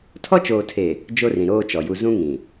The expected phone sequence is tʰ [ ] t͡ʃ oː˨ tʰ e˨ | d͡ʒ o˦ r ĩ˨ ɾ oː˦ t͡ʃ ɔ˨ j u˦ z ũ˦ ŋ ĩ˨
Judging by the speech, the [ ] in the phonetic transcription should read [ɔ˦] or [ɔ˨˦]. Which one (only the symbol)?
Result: ɔ˦